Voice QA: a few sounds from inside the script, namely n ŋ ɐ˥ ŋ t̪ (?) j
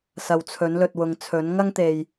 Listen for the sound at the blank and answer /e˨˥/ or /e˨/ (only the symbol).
e˨